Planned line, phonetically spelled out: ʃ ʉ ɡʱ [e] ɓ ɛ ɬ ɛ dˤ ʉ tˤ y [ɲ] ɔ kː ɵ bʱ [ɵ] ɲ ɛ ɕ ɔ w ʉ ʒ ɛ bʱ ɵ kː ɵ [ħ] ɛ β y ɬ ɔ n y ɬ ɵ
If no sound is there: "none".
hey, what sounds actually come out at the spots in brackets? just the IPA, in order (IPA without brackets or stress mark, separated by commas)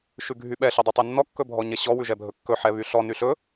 y, nː, ɔ, ħ